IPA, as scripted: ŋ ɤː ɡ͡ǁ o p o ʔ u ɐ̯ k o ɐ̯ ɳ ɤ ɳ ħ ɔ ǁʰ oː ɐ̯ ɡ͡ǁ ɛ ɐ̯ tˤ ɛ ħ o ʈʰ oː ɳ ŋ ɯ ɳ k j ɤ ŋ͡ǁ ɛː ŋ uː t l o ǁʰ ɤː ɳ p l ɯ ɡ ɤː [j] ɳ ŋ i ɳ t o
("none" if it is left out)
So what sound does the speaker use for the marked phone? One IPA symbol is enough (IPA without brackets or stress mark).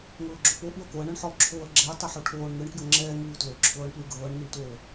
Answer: none